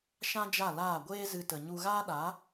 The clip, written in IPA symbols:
ʃã˦d͡ʒa˦˨laː˦˨ ɡʷeː˦zɨ˧ tə˨ɲu˧ɣaː˦ɗa˨˦

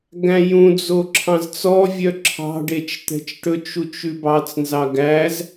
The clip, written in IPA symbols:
ɡæ̃jũd͡zo ǁʰɑ̃zt͡sɔvʲœ ǁʰɑ̤ɖet͡ʃ t̪ɛ̤t͡ʃʈɵt͡ʃut͡ʃ ʉbɑt͡snzɑ ɡæz

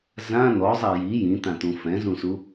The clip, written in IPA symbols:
zã n̪ɔzˤa ji jĩt̪ãt̪ũ fɛ̃zũsu

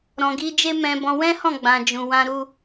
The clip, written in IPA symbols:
ɾɔ̃˨ɡi˧d͡ʒe˦ mɛ̃˧bɔ̃˧ wɛ̃˦hɔ̃˦˨ɡ͡bã˨ d͡ʒũ˨wã˧ɾu˧

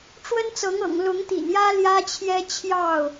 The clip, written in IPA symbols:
ʈ͡ʂwə˦nt͡sɤ˨˦ŋɤ̰˨˩ŋ lʊ˨˦ŋt̪ḭ˨˩njä˦ ljä˦t͡ɕʰjɛ˦t͡ɕʰjɑ˥˨ʊ̯

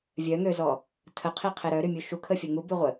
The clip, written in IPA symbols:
vʲœŋøzɔ | tʰəqʰiqʰe ɾœɾymʲu ʃukʰəfʲə ŋubyʁʷə

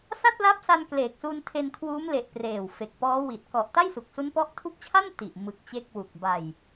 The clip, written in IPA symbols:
sa˥˩t̚la˦˥p̚sa˧n kleː˨˩k̚su˧ntʰe˧nkʰwuː˦˥m le˨˩ʔ preː˨˩wfe˨˩k̚pɔː˦˥ wi˨˩t̚ kɔ˨˩ʔ ta˥˩jsu˨˩k̚su˦˥npɔ˦˥ʔ tʰu˦˥k̚t͡ɕʰa˥˩n ti˨˩ʔ mɯ˨˩k̚ t͡ɕe˥˩k̚wu˨˩k̚ ba˨˩j

